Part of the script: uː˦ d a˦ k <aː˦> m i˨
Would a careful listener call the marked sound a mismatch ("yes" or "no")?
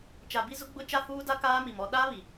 no